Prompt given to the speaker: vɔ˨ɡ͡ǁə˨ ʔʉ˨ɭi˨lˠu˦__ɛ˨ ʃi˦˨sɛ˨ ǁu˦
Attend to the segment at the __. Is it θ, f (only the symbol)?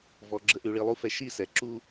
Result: f